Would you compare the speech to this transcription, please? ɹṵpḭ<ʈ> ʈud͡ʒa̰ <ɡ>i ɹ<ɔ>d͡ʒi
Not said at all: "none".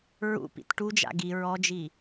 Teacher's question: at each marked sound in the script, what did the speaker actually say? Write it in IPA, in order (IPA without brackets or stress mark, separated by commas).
t, ɡ, ɔ